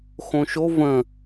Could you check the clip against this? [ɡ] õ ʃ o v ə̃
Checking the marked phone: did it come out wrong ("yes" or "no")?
yes